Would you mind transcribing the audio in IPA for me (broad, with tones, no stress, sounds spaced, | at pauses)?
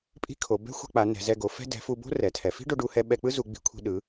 pʼ i̤˥ kʰ o˩˧ b ɛ̤˥ xʷ ɛ̤˧ k͡p a˩˧ n ɛ̤˩˧ z ɛ˧ ɡ o˩˧ f ɛ̤˥ d ɛ̤˩˧ f u˧ b o̤˥ r ɛ˩˧ tʰ ɛ˩˧ f i̤˥ ɖ o˧ ɖ u˧ h ɛ˧ ɓ ɛ˧ k͡p ɯ˥ z u˩˧ ɡ͡b i̤˩˧ kʷʰ i̤˧ ɗ ɯ˩˧